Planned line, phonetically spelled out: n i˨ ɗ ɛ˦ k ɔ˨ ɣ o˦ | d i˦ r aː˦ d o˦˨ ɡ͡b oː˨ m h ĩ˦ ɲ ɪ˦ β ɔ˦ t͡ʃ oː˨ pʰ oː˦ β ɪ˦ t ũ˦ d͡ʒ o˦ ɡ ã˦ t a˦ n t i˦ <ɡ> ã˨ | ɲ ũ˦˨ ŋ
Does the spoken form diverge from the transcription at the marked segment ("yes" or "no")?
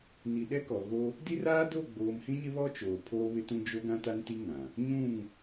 yes